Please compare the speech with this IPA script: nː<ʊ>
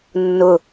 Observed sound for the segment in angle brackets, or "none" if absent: ʊ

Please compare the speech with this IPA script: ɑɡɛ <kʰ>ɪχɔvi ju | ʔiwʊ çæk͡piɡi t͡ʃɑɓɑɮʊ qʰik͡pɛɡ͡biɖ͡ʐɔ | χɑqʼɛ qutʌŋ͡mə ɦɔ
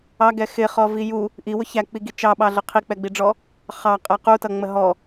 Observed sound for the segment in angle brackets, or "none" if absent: x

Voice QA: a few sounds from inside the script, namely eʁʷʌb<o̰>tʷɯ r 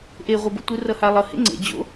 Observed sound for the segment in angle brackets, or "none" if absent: o̰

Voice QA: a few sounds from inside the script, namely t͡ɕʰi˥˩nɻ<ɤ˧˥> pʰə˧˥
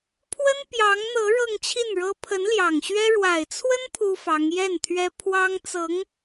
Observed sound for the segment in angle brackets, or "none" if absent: ɤ˥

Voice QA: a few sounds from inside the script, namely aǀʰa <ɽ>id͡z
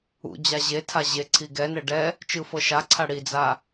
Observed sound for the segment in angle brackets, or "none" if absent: ɽ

